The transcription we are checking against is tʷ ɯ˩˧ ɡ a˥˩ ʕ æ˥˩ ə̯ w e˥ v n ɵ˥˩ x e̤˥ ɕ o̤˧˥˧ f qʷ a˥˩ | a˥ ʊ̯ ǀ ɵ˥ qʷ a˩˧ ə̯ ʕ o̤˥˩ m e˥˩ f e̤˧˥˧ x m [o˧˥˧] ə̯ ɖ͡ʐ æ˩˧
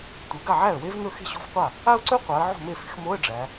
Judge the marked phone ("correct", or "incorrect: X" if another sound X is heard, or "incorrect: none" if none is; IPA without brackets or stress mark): correct